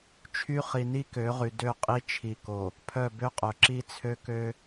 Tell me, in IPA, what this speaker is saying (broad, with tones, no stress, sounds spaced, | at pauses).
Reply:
t͡ʃʰ y˦ χ i˨ n i˦ k ø˨˦ ʁ y˨ d ø˦˨ qʼ i˦ t͡ʃʰ i˨ k o˨ | pʰ œ˦˨ b ø˦ qʼ œ˨ ǁ i˦ t͡sʰ ø˦ k ø˦